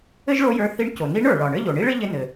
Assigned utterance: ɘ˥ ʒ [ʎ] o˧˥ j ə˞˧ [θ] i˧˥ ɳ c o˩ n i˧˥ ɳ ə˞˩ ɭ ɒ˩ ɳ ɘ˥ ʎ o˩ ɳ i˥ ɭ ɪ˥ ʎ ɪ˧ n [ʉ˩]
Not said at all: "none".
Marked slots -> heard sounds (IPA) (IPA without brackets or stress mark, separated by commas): ɭ, θ, ɘ˩